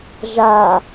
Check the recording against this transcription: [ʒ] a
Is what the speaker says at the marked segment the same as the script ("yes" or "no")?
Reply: yes